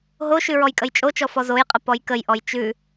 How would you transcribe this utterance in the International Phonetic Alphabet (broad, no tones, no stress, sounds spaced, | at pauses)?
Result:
ɦ o ʃ ʉ ɹ ɔ j kʼ ə j t͡ʃʼ o t͡ʃ ɔ f ɔ z o j qʼ ə p ɔ j k ə j ʔ ɔ j t͡ʃ ʉ